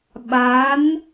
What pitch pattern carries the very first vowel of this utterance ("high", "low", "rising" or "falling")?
rising